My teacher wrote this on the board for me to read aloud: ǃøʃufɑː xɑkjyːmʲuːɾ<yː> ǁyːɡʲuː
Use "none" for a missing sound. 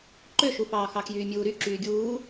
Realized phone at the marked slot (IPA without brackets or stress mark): y